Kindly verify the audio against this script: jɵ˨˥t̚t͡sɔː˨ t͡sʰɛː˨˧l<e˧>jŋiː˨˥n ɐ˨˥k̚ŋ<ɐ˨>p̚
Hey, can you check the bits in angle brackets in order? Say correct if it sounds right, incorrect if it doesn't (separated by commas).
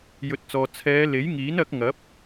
incorrect, incorrect